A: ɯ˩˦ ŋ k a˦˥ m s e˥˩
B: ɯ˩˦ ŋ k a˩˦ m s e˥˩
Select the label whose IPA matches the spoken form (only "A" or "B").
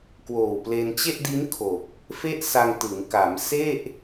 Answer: B